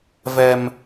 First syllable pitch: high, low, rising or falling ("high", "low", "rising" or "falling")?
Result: high